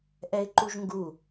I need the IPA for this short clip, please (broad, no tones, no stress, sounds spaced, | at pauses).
ʔ ɛ ɪ̯ ǃ u ʒ ŋ ɡ u